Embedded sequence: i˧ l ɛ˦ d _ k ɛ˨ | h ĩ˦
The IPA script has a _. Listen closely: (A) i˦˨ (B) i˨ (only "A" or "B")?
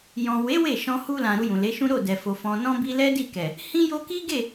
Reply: A